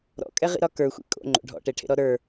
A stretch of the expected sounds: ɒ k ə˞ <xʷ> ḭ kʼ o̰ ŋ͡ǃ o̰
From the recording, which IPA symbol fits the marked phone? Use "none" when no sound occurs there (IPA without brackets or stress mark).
xʷ